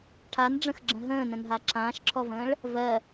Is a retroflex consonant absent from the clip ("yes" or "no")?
no